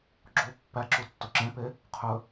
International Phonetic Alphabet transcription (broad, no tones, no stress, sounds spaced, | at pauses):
ɡ͡ǁ o pː æ ǁ u tː o ǁ ẽ p e | qʰ ɵ